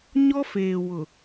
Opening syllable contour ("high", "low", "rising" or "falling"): high